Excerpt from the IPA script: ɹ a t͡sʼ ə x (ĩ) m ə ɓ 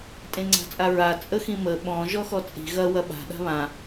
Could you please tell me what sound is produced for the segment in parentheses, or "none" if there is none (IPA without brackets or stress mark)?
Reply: ĩ